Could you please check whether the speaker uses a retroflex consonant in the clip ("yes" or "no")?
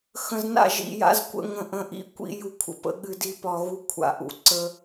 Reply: no